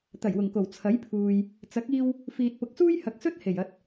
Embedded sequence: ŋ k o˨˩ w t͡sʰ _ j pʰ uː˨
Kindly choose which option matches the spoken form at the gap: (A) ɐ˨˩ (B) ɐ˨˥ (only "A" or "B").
B